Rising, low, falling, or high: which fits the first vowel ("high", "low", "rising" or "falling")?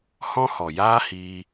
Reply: high